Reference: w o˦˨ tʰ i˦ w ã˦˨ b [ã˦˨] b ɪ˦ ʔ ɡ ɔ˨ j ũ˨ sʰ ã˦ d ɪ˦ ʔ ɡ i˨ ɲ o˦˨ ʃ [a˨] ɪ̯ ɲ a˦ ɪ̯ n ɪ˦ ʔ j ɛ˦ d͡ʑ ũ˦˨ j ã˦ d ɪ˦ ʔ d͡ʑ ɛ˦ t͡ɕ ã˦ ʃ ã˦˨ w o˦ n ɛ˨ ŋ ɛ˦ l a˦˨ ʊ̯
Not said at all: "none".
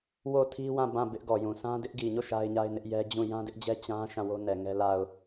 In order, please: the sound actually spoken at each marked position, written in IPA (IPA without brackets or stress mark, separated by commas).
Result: ã˦˨, a˦